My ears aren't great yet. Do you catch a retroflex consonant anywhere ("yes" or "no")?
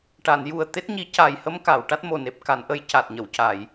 yes